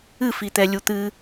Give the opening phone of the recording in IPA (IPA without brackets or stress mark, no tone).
ɨ